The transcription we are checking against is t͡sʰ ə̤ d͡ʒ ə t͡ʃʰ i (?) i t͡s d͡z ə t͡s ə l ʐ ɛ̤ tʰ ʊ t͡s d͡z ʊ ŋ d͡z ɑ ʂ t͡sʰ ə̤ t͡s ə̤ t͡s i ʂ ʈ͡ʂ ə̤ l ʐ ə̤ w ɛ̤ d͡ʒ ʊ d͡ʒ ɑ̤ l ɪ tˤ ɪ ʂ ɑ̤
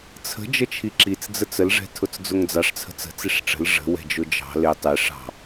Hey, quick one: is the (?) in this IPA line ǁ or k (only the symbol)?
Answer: ǁ